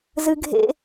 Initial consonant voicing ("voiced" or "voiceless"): voiced